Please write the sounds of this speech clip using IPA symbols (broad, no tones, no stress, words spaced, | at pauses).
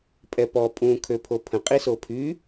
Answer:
pʼɛpɔ pʼũ kʰøpʰopʰə̃ qʼisopʰy